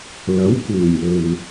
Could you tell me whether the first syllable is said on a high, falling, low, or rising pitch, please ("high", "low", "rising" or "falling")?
rising